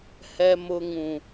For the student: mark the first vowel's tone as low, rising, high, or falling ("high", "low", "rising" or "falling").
low